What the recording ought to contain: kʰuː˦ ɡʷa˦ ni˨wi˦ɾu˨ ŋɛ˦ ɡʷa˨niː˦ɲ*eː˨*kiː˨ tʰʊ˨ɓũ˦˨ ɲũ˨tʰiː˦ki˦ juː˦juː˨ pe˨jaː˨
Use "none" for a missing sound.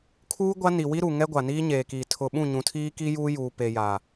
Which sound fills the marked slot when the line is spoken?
eː˨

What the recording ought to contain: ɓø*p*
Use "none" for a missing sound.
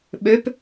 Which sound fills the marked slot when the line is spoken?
p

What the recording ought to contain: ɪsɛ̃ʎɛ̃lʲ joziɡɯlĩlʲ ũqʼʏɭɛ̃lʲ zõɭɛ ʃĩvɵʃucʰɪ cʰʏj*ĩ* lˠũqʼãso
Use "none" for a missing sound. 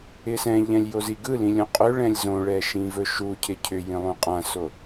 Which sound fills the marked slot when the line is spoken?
ĩ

